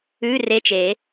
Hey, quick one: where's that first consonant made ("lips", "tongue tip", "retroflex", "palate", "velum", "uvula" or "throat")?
tongue tip